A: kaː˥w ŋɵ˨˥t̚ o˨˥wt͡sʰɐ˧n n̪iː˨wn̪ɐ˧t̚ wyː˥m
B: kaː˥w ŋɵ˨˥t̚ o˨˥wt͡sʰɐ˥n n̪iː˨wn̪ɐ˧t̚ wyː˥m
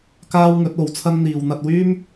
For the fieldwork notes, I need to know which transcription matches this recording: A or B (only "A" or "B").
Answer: B